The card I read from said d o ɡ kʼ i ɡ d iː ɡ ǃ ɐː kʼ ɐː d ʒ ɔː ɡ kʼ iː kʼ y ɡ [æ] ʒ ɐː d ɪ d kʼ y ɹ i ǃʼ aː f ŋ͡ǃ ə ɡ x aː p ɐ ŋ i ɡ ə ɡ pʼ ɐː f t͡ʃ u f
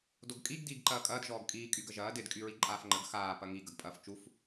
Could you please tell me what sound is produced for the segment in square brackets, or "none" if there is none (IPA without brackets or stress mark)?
ə